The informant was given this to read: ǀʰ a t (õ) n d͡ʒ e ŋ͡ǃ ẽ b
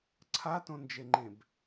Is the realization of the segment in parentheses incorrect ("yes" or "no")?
no